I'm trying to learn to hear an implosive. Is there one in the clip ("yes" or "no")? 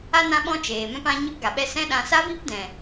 yes